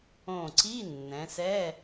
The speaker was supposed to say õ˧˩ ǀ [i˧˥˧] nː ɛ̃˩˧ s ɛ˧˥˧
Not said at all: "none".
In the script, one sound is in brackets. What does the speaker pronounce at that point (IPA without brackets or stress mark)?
i˧˥˧